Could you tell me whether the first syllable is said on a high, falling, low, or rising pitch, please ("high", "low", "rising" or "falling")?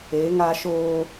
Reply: rising